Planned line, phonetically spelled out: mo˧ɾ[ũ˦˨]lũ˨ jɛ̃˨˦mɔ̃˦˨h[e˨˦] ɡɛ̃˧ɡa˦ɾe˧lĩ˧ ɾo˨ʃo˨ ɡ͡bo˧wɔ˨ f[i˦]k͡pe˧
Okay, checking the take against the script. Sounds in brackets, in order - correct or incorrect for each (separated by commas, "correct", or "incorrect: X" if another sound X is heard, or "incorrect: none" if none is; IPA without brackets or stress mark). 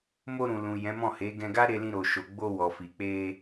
incorrect: ũ˨, correct, incorrect: i˨